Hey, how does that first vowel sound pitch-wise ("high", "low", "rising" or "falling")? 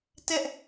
high